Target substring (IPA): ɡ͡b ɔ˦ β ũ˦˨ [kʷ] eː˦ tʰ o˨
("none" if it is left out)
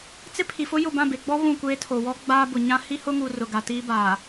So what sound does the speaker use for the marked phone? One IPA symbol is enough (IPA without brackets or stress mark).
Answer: kʷ